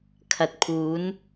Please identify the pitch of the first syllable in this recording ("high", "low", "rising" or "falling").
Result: low